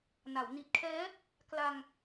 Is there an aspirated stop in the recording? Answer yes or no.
yes